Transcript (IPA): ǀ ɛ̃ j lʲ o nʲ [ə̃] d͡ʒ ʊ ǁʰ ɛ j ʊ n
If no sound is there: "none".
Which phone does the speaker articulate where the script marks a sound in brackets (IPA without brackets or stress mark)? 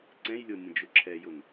ə̃